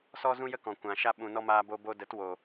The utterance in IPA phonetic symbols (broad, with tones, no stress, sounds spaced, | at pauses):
s ɔ˦ z ũ˦ j ə˦ k ɔ̃˨ kʷ ã˨ ʃ a˧ ɓ ũ˨ n ɔ˧ m aː˧ b o˧ b o˧ d ə˨˦ t w o˨